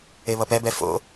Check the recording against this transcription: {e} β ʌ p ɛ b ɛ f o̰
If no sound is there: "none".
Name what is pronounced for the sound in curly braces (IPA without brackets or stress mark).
e